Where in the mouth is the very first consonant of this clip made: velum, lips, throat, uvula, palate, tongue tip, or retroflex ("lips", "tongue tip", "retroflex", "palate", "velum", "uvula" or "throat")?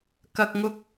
velum